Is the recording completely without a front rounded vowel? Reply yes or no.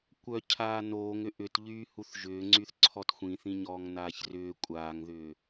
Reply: no